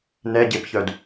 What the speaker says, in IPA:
n ɛ ɟ e p ç œ d

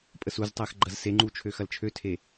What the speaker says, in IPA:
pʼ ə s u z tˤ æ x ɡ͡ǃ ɐ z s e ŋ͡ǃ u t͡ʃʰ ø x ɐ l t͡ʃʰ ø tʰ e

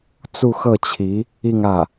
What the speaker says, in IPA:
t͡s u˥˧ x ɤ˥˩ t͡ɕʰ i˧˥ | i˥˧ ŋ ä˥˩

